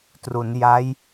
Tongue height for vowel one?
high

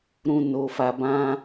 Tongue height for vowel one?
high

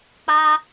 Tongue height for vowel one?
low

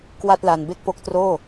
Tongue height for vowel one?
low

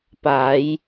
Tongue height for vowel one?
low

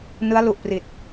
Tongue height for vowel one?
high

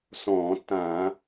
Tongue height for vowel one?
mid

